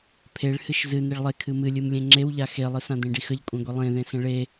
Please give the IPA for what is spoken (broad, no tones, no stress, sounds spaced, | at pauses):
pʰ e ɭ h ɨ ʃ z ɨ n e ɭ lˠ e kʰ ɨ m ɨ lʲ ɨ m lʲ ẽ ŋ͡ǁ e w ʎ a x e lˠ ɨ s ã d̪ ẽ ɖ i x ə ʎ kʷʼ ẽ ɡʷ i lˠ ẽ ð ẽ s ə̃ ɭ e